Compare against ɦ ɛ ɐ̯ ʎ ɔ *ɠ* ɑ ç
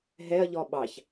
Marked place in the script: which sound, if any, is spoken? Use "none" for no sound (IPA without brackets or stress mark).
ɓ